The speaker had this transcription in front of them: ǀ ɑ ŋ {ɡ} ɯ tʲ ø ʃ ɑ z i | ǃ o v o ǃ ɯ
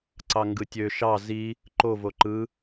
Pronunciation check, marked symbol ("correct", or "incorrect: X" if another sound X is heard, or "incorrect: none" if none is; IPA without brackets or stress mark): correct